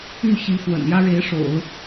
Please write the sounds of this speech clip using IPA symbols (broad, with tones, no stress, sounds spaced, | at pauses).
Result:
y˥˩ ɕ i˧˥ f w ə̰˨˩ n j ä˥ ɻ e˧˥ ɪ̯ ʂ o̰˨˩˦ ʊ̯